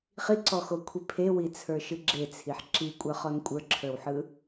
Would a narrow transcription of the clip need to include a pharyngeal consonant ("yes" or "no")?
yes